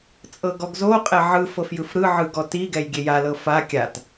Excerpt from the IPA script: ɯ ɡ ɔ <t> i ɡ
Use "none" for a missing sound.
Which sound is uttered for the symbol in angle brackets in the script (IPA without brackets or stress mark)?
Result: t